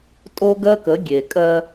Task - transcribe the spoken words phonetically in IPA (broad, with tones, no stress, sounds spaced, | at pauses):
tʼ o˦ ɡ ɜ˦ k ə˨˦ ɡʲ e˨ kʼ ɜ˦